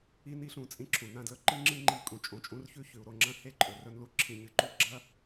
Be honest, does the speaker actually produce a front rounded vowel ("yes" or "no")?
no